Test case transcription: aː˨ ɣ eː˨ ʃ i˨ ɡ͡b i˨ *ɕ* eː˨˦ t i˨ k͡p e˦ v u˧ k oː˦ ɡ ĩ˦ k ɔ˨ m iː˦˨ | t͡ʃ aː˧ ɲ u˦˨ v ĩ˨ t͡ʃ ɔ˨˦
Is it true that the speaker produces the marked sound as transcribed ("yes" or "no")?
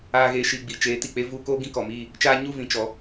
no